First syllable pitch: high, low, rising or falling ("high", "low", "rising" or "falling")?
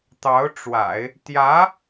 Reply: rising